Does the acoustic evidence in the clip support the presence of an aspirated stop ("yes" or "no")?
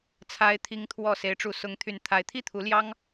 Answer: yes